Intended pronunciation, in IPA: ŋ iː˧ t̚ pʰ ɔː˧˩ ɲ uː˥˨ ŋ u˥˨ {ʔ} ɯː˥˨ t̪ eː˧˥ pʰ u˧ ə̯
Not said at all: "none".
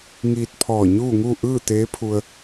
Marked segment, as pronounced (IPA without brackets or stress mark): ʔ